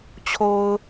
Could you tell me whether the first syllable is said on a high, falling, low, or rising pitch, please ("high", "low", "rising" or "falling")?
low